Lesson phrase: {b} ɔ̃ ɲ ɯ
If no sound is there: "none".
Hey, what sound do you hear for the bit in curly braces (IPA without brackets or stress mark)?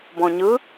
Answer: b